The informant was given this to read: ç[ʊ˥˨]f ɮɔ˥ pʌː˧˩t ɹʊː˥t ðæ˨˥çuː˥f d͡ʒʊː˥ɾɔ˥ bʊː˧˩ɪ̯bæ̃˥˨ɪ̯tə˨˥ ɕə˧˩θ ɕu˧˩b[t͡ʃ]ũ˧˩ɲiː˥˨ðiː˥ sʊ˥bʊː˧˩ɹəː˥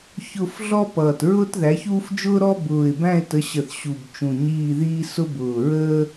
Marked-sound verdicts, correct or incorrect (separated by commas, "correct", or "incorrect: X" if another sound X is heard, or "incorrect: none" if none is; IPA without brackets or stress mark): correct, correct